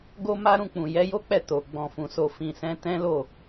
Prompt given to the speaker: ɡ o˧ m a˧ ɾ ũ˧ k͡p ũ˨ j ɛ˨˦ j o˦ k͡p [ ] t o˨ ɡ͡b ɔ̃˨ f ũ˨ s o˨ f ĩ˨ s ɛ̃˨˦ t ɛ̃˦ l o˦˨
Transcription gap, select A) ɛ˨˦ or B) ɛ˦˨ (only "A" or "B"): B